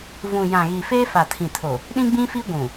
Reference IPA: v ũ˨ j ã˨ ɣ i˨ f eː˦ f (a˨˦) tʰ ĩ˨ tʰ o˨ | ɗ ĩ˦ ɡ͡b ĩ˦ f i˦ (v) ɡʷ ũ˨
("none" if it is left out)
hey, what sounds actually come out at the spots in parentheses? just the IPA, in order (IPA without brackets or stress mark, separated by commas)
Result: a˨, none